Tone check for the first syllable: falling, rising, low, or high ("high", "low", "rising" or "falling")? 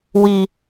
low